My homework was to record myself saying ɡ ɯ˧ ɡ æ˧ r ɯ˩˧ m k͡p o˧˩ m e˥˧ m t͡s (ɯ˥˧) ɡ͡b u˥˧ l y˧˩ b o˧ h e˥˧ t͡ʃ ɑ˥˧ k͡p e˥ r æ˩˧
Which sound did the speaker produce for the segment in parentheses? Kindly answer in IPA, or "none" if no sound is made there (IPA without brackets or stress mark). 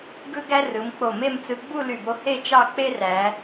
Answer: ɯ˧